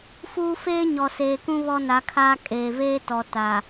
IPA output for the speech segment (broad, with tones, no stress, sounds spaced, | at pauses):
f uː˦ f eː˦ ɲ ɔ˨ s eː˨ k ũ˦ β ɔ˦ n a˨˦ kʰ aː˦ kʼ eː˨ v eː˦ t ɔ˨ t a˨